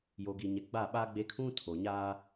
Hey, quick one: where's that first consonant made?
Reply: palate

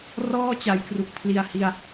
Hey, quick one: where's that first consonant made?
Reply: tongue tip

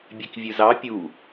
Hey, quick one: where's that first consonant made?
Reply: lips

